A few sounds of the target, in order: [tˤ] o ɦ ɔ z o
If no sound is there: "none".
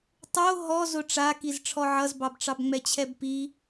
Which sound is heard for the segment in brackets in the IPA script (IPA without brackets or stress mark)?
tˤ